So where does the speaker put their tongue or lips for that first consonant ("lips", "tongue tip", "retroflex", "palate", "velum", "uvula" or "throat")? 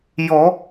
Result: palate